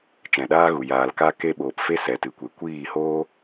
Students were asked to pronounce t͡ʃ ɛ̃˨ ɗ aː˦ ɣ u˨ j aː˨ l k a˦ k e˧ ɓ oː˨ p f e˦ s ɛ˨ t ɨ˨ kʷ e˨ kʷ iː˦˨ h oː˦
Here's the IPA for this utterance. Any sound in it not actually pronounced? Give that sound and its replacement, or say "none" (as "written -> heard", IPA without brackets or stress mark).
none